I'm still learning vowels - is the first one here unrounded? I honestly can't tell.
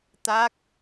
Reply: yes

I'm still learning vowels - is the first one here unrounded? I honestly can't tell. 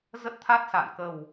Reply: yes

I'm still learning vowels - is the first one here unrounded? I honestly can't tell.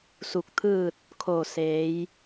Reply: no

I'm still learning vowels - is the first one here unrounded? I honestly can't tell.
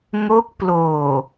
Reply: no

